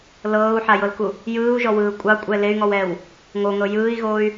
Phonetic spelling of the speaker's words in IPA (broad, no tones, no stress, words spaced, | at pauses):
lɤːu̯ħajɤlku | jɯːu̯ʒɔwɯː kʷʼɑkʷʼɛ ley̯ŋɔwɛːw | ŋoŋɤ jɯːi̯ɣoːy̯